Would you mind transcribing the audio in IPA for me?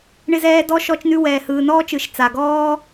ɳ ɪ˦ z ɛː˦ d ɔ˥ ʃ ɔ˦ t͡ʃ n ʉ˦ w ɛː˨ h ɯː˨ n ɔː˥ t͡ʃ ɯ˨ ʃ t͡s a˨ ɡ ɔː˥

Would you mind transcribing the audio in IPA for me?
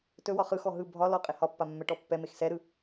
t ɵ w ɒ χ ɯ x ɔ ɦ ɯ bʱ ɒ l ɔ qʼ e h ɒ pː a mː ɛ ʈ ɔ pː ɛ m e x s ɛ ɾ ɯ

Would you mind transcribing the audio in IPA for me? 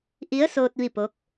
ʔ i˧˥ ə̯ s oː˧ t̚ ʋ i˥˨ p o˧˥ k̚

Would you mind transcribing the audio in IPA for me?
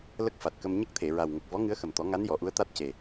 l ə˦˥ k̚ f a˨˩ t̚ k ə˧ m ɲ ə˦˥ k̚ t̪ʰ e˨˩˨ ɹ a˨˩ w ŋ ə˨˩ k̚ v ɔ˧˥ ŋ ɨ˧˥ ə̯ x ə˨˩ m t̪ ɔ˨˩˦ ŋ a˧˥ n j ɔ˨˩˨ ʔ u˧˥ ə̯ t̪ a˦˥ t̚ c e˨˩

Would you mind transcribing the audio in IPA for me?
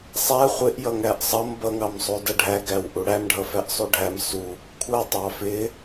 sˤ æ χʷ ɪ ʔ j ʌ ŋ æ ʔ sˤ ʌ m b ʌ ŋ ɑ m sˤ u d ʌ ɖʱ æ ɡ æ w ʔ u ɽ æ m ɖʱ ʌ f æ ʔ sˤ u ɖʱ æ m s u | kʷʰ ʌ tˤ ɑ f ɪ

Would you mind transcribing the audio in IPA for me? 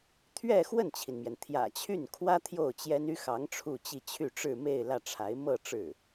t̪ʰ ɥ ɛ˥˧ x w ə˥˩ n t͡ɕʰ i˩ n m j ɛ˩ n t̪ʰ j ä̰˨˩ t͡ɕʰ y˥˩ n kʰ w ä˥ t̪ʰ j o˥˩ ʊ̯ t͡ɕ j ɛ˥ n y˥ x ɑ˧˥ ŋ ʈ͡ʂʰ u˥˧ t͡ɕ i˥˧ t͡ɕʰ y˥˧ ʈ͡ʂ ɻ̩˥˧ m e˥˧ ɪ̯ l ä˥˩ ʈ͡ʂʰ a˧˥ ɪ̯ m ɤ˥˧ ʈ͡ʂ ɻ̩˥˩

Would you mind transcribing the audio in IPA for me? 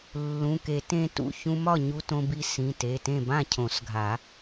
lː ũ˩˧˩ k e˨˩˦ t ẽ˧ t ṵ˩˧˩ ç ũ˧ m ɒ˥˩ ɲ u˧ t õ˧ b i˧ s ĩ˩˧˩ t e˩˧˩ t ẽ˥˩ b ã˥˩ cʰ õ˨˩˦ s ɡʱ a˨˩˦

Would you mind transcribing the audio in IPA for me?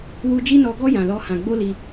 w u˦ d͡ʒ i˦ n ɔ˧ ɡ ɔ˦ j ã˧ l ɔ˦ h ã˧ ɡ͡b o˦ l i˧

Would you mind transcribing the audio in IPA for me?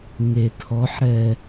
ŋ e tʰ ɔ ħ ɾ ɛ

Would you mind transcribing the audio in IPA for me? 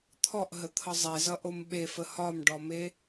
t̪ʰ ɔ ʔ ɦ ə t̪ʰ ʌ zˤ e z ʌ ʔ o m ɓ e f ə h ɒ m ɖ ɔ m e

